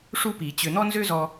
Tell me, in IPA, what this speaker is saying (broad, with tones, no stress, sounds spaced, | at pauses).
ʂ u˥ p i˩ t͡ɕ ʏ˧˩˧ n̪ ɔ˥ n z ø˥ z ɔ˧